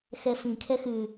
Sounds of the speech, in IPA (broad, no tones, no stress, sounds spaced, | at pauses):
x ɛ f ĩ kʰ ɛ x ʉ